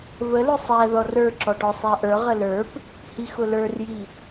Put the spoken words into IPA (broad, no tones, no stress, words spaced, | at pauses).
vəlʊ sˤæ ðɔrə˞ǁɔʈɔ sˤæʔə˞ ʁələ˞p | hixʊlə˞rji